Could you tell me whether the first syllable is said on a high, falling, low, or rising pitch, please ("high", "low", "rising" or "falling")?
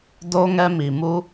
high